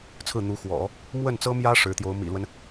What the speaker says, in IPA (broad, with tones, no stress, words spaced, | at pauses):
t͡sʰɹ̩˥˩n̪u˧˥xwɔ̰˨˩˦ | mwə˥˩nt͡sɤ˥mjä˥ ʂɻ̩˧˥t̪jo˧˥ʊ̯mḭ˨˩lwə˦n